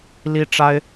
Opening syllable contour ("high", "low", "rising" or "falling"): high